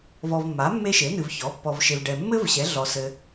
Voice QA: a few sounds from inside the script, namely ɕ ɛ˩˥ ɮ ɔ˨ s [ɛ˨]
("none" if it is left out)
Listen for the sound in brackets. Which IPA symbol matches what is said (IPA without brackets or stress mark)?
ɘ˨